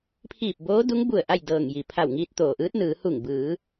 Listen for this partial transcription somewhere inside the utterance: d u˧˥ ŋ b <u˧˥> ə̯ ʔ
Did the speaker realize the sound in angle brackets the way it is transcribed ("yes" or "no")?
no